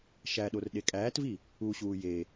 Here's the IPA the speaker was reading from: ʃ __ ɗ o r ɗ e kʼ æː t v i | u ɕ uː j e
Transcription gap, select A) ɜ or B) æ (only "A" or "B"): B